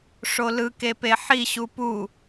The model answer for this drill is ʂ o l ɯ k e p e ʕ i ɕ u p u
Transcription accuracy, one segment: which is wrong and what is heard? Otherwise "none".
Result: ʕ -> ħ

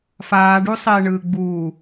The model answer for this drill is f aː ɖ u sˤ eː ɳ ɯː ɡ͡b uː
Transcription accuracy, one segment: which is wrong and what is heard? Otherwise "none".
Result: none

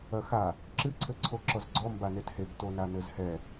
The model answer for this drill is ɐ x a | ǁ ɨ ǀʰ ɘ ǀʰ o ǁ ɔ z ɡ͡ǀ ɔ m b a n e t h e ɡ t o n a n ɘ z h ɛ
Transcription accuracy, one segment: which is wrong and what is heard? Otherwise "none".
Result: none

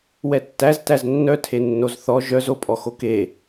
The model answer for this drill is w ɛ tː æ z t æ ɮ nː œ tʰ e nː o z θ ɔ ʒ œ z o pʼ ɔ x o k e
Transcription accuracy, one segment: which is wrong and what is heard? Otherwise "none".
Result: ɮ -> z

